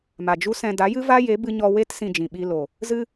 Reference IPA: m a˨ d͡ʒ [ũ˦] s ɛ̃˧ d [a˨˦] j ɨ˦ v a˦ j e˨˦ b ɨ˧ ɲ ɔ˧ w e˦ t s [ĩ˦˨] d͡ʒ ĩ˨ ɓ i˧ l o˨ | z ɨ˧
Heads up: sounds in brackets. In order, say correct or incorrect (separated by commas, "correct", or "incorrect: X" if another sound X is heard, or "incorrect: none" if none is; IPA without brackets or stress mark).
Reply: incorrect: u˦, correct, incorrect: ĩ˧